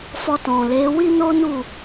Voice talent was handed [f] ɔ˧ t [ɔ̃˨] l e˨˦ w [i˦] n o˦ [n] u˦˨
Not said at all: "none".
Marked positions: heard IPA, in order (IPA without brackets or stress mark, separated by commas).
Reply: f, ɔ̃˨, i˦, n